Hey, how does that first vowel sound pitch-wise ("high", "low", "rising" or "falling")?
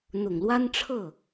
low